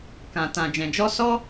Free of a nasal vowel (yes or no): no